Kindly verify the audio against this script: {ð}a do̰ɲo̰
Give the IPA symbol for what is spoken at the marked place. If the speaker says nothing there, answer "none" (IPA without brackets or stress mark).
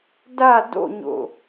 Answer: d